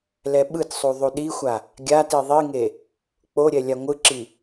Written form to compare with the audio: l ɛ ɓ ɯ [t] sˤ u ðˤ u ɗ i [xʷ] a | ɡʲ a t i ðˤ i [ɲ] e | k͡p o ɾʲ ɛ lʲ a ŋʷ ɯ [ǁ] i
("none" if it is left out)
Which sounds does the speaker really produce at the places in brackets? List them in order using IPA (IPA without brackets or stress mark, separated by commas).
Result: t, xʷ, ŋ, ǁ